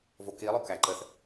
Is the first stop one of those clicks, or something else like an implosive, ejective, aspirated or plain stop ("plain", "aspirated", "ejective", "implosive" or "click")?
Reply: plain